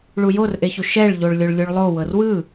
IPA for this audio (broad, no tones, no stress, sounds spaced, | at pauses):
ɭ u j o r ʔ e ç u ʃ ɛ ɭ ʎ o ɭ lʲ o ɭ lʲ u ɭ lˠ o w ɤ r w ɯ